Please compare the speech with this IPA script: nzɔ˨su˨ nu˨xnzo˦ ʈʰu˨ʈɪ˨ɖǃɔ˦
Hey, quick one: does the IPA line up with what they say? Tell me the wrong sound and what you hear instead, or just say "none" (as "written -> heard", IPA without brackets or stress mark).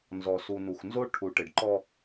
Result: none